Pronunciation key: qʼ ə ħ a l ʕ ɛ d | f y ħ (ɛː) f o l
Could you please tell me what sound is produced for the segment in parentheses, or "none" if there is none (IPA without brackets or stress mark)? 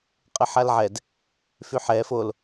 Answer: ɛː